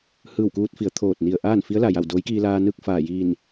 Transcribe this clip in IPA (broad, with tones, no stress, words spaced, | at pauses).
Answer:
hɯː˧˩wkuː˧t̚fi˩˧ə̯ t̪ʰoː˧˩t̚ni˧˩ə̯ ʔaː˥˨nfi˧˥ə̯la˩ja˧˩w doː˧˥jkiː˧laː˧nɯː˥˨k̚ faː˧˩jiː˧˩n